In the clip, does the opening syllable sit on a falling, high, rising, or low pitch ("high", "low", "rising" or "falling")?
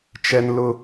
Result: high